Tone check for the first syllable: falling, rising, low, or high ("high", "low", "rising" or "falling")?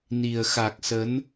low